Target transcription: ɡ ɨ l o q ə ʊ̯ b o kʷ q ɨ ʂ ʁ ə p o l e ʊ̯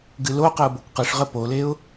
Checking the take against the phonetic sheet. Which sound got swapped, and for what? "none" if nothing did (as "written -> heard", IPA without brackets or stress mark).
none